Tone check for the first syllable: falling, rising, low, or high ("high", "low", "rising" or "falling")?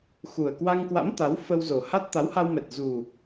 low